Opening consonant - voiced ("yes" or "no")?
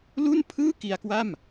yes